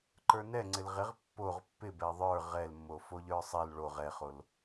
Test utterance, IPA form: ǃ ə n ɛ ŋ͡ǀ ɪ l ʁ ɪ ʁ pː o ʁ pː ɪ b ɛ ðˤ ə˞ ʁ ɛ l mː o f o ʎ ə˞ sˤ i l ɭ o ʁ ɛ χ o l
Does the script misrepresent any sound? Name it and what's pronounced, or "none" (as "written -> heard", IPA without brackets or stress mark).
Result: ə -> ə˞